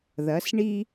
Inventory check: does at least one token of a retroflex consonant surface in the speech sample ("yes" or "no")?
yes